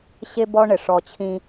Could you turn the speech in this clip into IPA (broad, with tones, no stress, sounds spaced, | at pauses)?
ɕ ɪ˦ b ɔ˦ ɳ ɪ˨ ʂ ɔ˨ t͡ɕʰ ĩ˧